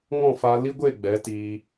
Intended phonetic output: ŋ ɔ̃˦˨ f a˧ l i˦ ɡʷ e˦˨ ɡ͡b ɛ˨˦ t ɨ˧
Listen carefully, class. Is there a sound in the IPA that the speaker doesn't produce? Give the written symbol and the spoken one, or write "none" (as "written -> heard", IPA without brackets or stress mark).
ɨ˧ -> i˧